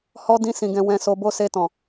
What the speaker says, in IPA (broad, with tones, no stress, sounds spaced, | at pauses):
h ɔ˧ d ĩ˦ s ĩ˧ ɡ ɛ̃˧ w ɛ̃˧ s o˧ b o˦ s e˧ t ɔ̃˨